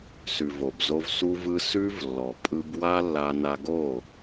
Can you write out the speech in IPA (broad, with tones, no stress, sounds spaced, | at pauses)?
s ʉ˨ v o˨ b z o˧ v s u˧ v ɯ˧ s ʉ˧ v lː ɔ˨ pʼ ɯ˧ b w a˦ lː a˧ n a˧ ɡ o˦˨